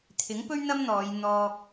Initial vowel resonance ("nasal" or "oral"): oral